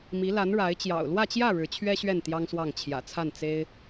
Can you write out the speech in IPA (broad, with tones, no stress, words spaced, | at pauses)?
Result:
mi˧˥la˧˥n ɻa˧˥ɪ̯ t͡ɕjɑ̰˨˩ʊ̯lwä˥˧t͡ɕjä˥˩ ɻɻ̩˧˥t͡ɕʰɥɛ˥ɕɥɛ˥˩n t̪jɑ˥ŋswɑ˥˩ŋ t͡ɕʰjä̰˨˩ t͡sʰa˥˩n t͡se˥ɪ̯